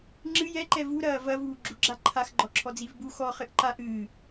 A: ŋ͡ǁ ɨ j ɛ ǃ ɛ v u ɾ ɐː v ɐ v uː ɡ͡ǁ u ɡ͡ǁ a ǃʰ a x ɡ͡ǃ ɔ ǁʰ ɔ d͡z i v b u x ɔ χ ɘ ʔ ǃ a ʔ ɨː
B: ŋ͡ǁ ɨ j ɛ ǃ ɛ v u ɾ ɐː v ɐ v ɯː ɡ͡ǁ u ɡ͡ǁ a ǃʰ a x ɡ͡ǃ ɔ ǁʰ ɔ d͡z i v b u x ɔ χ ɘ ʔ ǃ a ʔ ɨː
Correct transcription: A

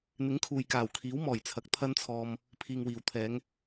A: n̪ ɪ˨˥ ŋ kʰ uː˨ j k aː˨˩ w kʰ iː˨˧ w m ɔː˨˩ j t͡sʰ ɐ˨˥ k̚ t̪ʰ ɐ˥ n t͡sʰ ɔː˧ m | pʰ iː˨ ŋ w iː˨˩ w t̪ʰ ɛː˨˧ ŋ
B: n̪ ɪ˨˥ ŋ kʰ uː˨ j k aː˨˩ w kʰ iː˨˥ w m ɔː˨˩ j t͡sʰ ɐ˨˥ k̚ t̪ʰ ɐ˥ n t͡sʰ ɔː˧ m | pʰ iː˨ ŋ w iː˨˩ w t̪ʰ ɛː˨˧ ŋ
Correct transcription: B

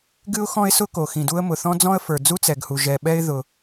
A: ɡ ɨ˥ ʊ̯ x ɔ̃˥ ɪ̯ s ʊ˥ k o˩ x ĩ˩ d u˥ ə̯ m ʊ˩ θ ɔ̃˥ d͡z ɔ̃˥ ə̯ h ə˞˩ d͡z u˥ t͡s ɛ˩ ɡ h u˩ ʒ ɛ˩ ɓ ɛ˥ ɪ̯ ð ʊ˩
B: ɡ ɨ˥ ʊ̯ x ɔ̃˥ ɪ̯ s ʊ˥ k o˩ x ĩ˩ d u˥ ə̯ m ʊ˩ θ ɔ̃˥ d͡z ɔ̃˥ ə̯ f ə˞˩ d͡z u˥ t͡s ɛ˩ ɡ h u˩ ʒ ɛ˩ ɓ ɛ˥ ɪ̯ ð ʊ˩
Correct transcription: B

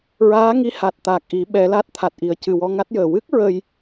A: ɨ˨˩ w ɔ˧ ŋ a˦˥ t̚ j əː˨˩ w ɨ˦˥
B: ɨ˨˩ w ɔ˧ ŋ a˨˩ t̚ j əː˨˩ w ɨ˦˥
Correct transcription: A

